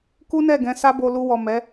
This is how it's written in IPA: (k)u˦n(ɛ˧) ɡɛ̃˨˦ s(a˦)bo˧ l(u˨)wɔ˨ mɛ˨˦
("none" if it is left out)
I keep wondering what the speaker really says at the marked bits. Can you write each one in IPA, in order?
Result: k, ɛ˦˨, a˦, u˧

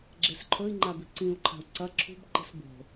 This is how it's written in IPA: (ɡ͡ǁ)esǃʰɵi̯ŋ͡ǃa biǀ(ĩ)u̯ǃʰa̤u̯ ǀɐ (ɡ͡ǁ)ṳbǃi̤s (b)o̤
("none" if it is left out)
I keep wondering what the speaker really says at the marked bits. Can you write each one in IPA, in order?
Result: ɡ͡ǁ, ĩ, ǁʰ, b

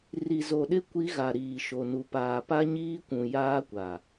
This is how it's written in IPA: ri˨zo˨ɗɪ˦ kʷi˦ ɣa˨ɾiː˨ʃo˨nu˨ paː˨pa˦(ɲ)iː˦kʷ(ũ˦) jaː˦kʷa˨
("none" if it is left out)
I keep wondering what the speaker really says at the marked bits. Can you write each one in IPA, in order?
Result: ɲ, ũ˨

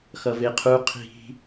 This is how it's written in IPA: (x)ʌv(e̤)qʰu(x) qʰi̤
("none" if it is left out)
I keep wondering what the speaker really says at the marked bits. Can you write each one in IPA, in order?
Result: x, e, none

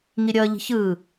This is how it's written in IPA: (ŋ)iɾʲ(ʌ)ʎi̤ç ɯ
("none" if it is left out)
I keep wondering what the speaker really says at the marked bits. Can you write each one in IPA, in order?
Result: ŋ, ʌ

